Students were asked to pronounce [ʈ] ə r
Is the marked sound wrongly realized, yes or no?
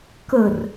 yes